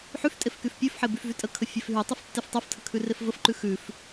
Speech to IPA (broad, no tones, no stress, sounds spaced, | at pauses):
ħ y f tʼ e f k y f pʲ ʉ f ħ e b y f v y tʼ ə kʰ ə fʲ e f ɦ y tˤ y f tː e f tˤ ɛ f tʰ ə kʰ ʉ r e f v ə f ǃ ʉ x ʉ f